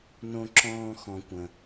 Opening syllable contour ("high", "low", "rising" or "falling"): low